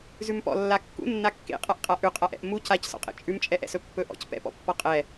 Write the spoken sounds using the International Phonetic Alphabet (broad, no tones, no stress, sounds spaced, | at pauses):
z ʉ m p ɔ̰ lː a kː ṵ nː a kː ḛ qʼ a ʔ qʼ a ʔ ʉ qʼ a ʔ ɛ̰ ʔ m u c a c s ɔ̰ qʼ ḛ t͡ʃʼ ʉ m t͡ʃʼ ɛ ʔ ɛ̰ s ɵ pː ɵ ʔ ɔ̰ c p ɛ̰ p ɔ̰ pː ɔ qʼ ɛ